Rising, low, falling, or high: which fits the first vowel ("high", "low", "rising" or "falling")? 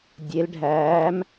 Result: rising